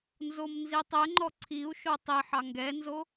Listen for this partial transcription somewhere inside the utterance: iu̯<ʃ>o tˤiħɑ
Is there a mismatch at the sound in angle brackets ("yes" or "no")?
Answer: no